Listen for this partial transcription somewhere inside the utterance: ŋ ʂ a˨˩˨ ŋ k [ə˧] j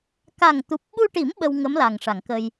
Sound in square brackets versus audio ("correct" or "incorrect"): correct